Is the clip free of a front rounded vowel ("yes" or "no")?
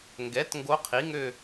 no